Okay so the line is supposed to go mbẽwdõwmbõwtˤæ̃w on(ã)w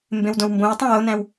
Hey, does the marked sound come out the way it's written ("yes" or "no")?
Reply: no